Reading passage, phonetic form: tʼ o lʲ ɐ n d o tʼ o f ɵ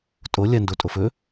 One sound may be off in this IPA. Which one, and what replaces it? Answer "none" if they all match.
none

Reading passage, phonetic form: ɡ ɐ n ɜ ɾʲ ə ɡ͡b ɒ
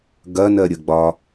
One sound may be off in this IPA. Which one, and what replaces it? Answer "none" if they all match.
none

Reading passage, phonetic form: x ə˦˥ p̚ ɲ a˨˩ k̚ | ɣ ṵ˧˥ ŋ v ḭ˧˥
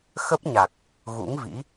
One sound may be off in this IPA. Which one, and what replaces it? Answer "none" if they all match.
none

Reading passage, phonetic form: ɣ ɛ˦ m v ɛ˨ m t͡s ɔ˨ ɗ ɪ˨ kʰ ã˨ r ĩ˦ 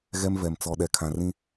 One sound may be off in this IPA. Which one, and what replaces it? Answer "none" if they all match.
ɪ˨ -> ɛ˨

